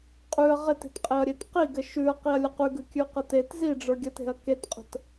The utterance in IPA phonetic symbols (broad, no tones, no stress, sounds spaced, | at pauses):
qʼ ʉ ɐ̯ ʁ e t e̤ t qʼ e ɐ̯ ɾʲ e t q i ɡ ɘ ʃ ʉ ɐ̯ q i ɐ̯ lʲ ə q ʉ ɡ ʉ kʲ ʉ q ə t e t z i ɖ͡ʐ ə˞ ɡʲ ə t e̤ ɐ̯ k e t qʼ ə̤ t